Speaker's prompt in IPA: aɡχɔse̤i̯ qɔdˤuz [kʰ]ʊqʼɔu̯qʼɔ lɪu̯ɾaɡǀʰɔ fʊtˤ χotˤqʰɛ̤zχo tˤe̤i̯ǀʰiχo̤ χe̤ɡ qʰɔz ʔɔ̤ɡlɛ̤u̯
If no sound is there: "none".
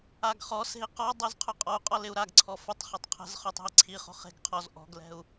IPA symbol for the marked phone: qʰ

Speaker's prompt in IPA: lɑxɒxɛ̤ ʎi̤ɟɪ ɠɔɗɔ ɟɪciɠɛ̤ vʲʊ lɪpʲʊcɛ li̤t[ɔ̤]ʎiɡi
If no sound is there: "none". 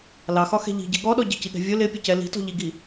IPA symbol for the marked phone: ɔ̤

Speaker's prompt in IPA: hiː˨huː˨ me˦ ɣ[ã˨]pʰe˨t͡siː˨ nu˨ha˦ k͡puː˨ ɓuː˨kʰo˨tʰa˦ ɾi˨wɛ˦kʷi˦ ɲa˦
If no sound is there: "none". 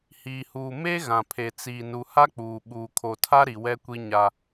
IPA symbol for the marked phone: ã˨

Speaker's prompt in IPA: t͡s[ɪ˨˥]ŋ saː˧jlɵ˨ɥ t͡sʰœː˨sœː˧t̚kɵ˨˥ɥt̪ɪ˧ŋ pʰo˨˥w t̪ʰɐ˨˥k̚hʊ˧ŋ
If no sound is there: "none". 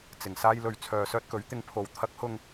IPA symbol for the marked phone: ɪ˨˩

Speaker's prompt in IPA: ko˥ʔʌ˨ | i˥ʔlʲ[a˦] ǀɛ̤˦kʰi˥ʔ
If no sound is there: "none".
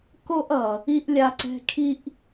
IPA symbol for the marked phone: a˦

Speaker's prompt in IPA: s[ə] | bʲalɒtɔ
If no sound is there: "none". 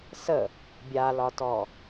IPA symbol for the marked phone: ə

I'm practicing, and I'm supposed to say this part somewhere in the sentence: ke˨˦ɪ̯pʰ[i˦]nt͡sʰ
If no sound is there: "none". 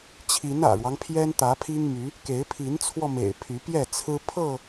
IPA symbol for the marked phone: i˨˦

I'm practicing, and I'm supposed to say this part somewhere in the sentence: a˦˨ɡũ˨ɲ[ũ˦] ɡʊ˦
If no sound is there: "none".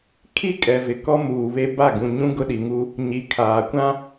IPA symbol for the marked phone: ũ˦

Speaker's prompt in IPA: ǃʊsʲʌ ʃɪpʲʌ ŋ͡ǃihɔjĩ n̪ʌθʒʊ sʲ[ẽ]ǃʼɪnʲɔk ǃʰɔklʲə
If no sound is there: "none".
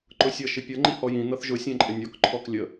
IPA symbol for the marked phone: ɛ̃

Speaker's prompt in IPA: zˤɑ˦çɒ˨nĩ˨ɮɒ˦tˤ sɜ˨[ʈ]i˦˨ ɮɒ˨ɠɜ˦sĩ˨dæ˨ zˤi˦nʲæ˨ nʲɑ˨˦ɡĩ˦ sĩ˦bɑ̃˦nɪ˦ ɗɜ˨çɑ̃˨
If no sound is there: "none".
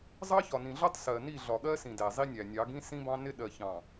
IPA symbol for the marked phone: n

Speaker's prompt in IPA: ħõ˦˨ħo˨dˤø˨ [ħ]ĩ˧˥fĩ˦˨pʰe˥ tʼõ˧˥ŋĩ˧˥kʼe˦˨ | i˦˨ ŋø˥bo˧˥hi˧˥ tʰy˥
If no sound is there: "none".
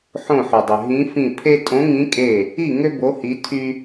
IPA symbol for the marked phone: ɦ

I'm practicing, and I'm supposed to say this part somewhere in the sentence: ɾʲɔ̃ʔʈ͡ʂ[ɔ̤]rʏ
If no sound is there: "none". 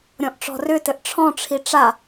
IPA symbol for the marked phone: ɔ̤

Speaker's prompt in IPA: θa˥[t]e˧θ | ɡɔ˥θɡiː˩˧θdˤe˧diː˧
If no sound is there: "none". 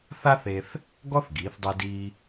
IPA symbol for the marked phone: θ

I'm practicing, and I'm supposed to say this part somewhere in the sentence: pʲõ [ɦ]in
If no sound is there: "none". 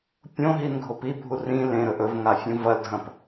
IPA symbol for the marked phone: ɦ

